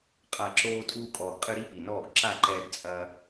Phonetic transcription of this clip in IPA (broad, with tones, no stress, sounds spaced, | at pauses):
qʼ a˨ ǁ oː˧ tʼ uː˧ kʼ ɔː˨ ɡ qʼ ɨ˧ ɾ i˦ p i˨ n ɔː˦˨ ɡ ǁ a˦˨ ǃ ɛː˧ ɡ t͡sʼ ɐ˧